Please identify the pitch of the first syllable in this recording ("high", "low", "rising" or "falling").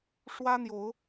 high